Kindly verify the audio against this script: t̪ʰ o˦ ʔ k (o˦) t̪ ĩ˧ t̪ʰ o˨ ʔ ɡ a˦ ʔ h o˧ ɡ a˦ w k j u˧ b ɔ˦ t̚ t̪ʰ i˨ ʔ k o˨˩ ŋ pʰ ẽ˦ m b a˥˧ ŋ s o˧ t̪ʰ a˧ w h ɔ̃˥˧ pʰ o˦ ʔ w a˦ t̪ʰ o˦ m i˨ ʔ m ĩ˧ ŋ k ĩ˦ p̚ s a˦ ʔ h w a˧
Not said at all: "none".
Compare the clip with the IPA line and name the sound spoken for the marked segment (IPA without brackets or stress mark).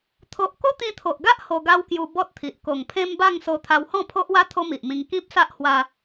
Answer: o˦